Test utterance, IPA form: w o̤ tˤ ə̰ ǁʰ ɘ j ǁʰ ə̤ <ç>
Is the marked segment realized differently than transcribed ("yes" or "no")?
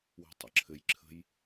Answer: yes